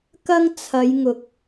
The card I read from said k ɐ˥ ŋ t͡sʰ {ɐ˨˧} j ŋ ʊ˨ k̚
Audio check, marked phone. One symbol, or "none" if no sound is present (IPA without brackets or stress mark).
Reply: ɐ˨˧